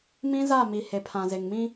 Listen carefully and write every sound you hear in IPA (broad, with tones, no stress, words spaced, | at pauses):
mĩ˦za˦˨mi˨ he˨ pʰã˨ze˨ŋmĩ˦